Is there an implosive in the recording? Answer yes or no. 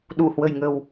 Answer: yes